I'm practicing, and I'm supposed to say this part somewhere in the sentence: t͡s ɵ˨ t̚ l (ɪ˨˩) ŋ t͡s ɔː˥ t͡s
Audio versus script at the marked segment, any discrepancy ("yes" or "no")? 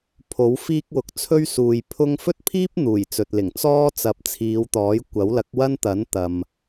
no